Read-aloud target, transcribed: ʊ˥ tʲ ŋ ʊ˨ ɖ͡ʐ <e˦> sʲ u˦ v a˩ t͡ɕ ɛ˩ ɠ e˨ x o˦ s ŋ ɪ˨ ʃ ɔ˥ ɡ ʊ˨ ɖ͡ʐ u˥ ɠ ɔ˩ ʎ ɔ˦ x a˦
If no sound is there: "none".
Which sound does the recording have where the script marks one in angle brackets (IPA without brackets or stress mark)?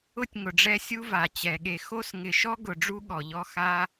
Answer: ɛ˦